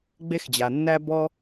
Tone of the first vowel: high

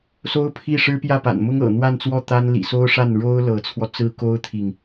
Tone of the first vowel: high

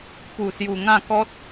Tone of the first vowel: low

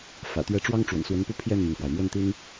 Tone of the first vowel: low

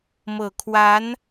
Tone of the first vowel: low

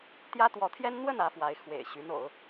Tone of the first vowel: high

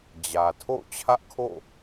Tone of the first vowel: low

